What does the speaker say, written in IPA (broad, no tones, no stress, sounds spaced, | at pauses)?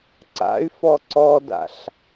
ǀ a̰ y̯ f ɔ ǀ ɔ d a̰ ɬ